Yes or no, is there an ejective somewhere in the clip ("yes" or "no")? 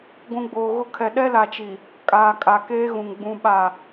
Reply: yes